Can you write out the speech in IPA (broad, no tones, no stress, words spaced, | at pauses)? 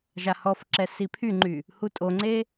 ʒahɔfǁɛ sipʰyŋ͡ǃy | hutʼoŋ͡ǀe